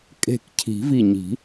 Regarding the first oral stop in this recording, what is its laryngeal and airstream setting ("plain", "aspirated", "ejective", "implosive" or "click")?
ejective